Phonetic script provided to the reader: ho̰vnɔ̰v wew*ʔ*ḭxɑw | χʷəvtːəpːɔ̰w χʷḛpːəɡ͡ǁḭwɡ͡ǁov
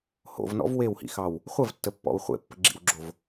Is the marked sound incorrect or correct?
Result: incorrect